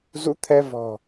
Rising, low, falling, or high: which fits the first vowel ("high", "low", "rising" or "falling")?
rising